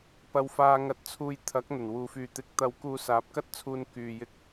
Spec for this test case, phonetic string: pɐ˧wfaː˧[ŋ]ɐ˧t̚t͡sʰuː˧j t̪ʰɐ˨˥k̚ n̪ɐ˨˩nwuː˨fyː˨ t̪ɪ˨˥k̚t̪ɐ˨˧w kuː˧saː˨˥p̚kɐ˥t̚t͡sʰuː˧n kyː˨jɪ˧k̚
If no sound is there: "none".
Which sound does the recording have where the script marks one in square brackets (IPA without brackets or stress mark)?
ŋ